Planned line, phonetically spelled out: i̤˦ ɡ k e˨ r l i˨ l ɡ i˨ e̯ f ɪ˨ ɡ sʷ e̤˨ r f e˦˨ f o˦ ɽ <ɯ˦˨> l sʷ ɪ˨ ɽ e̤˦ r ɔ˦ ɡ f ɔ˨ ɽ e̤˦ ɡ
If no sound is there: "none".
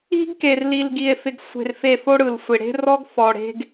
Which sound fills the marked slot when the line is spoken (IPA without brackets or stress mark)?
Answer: ɯ˨